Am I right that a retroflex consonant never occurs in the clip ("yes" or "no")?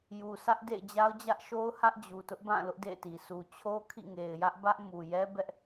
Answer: yes